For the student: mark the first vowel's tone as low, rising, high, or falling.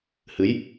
rising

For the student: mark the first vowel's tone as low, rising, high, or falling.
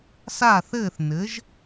falling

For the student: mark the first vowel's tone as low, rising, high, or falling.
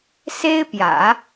high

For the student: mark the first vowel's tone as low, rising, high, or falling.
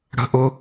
high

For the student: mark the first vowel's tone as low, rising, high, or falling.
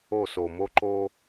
falling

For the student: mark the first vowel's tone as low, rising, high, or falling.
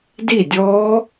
falling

